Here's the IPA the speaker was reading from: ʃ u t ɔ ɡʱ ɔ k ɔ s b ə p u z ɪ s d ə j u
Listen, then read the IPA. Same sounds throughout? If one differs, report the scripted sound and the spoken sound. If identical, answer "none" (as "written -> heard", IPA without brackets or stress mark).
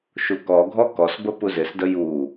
t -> k